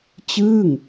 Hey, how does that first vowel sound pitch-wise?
falling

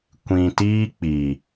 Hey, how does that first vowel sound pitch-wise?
low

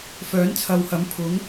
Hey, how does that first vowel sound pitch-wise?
rising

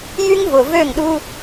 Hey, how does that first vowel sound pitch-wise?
high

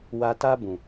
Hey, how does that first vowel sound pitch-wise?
low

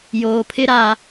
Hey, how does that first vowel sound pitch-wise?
low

